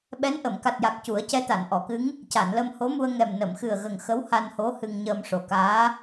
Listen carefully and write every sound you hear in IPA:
ɓ ɛ˧˥ n ʔ ə˨˩˨ m k a˨˩ t̚ j a˨˩ k̚ c u˨˩˦ ə̯ c ɛ˧˥ t̪ a˨˩˨ n ʔ ɔ˨˩˨ k ɨ˧˥ ŋ | c a˨˩˨ n l ə˧ m h o˧˥ m u˧ ə̯ ŋ ɛ˨˩ m n ə˨˩˨ m x ɨ˨˩ ə̯ ɣ ə˨˩ ŋ x ə˧˥ w h a˧ n h o˧˥ h ɨ˧ ŋ ɲ əː˧ m ʂ o˨˩ k aː˧˥

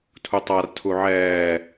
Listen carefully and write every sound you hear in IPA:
tʰ u tˤ a r tʰ u ʕ ɛː

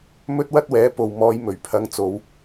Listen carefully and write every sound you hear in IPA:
m ɵ˥ t̚ w ɐ˥ t̚ w ɛː˨˥ p o˨ w m ɔː˨˧ j m ɵ˨˩ ɥ pʰ ɐ˨˧ ŋ t͡s o˨˧ w

